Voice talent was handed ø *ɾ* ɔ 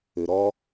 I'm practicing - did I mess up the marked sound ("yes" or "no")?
no